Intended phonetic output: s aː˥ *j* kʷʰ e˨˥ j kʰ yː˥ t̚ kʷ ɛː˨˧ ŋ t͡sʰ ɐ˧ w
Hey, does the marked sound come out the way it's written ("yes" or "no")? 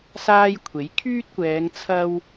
yes